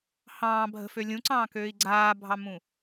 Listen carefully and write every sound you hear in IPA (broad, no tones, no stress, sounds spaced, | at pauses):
h ɑ̃ː bʱ ə̤ f ø lʲ ũ ǀ ɑ̃ː k øː i̯ ɡ͡ǀ aː bʱ ɑ m ũ